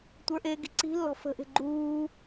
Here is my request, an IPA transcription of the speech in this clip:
tʷ ə˞ ʔ eː ɡ i̤ ǀ i̤ lː ɔ̤ f ə̤ ʔ e̤ ɡ͡ǃ uː

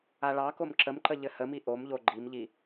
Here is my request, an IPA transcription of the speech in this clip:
a ɭ ɑ k o m ǁ ə m ǃ ə ʎ ɘ h ə m i ʔ o m ʎ o ɡ͡ǃ i m ʎ i

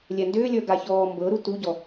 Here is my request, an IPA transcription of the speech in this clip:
lʲ ɛ n d ʏː lʲ ə˞ ɡ a ç ɔː m b ɤ ɾ u t u ɟ ɔ

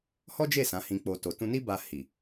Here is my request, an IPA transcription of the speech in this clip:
h ɔ˦ d͡ʒ e˦˨ s ã˨˦ h ĩ˧ k͡p o˧ t o˨ t ũ˧ n i˦ b a˧ h i˨

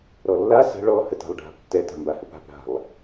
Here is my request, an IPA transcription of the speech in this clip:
ɾ ɔ lː a s ə̤ ɭ ɔ h ə t a̤ lˠ ɖʱ a̤ b tː ɛ t a̤ m b a h ə p a̤ p ɾ a̤ lˠ

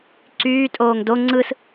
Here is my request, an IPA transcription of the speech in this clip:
ǀ yː tʼ oː ŋ d o ŋ͡ǀ ɯ s

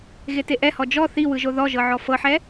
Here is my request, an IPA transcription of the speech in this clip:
ɣ e t e ʔ ɛ h ɔ d͡ʒ ɔ θ i w ɯ ʒ o ð ɔ ʒ ɤ ʕ ɔ f ɤ ħ ɛ

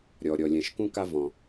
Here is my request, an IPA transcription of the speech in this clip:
ɾʲ ɔ˩ ɾʲ ɔ˩ lʲ ɛ̃˩ ʃ k ũ˧ k a˧ v ɔ̃˩

